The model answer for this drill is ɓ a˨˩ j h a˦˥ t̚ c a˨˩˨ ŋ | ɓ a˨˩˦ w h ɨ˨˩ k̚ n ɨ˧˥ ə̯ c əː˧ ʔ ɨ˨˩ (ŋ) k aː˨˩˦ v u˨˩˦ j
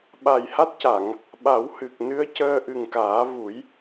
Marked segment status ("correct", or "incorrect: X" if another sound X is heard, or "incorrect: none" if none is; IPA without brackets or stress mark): correct